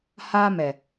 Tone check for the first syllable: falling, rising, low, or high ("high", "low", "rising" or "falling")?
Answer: high